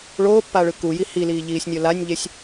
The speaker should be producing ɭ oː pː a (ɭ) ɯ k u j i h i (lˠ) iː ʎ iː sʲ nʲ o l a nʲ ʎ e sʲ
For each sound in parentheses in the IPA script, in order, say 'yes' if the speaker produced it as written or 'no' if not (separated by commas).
yes, no